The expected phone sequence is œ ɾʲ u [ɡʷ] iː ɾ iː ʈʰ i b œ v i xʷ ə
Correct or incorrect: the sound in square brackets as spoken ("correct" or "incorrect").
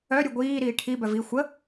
correct